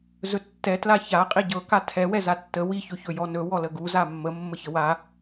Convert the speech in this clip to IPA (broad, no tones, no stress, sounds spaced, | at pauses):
z ɵ tː ɛ t l a ç a qʼ i ɟ ɤ k a tʰ ɛ w ɛ z a tː ə w i ç ɵ ç ɵ j ɔ n ɵ w ɔ l ə ɡ u z a mː ə mː ə ç ə w a